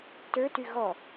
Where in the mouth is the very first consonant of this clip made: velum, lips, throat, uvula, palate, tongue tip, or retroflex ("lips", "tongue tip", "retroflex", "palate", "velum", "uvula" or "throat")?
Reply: tongue tip